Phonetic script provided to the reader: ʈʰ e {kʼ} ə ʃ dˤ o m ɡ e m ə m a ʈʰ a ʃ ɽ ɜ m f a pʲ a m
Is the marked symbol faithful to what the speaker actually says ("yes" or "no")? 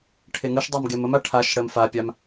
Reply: no